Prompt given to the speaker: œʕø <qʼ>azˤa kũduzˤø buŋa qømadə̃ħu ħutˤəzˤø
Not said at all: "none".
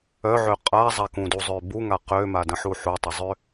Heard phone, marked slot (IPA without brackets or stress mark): qʼ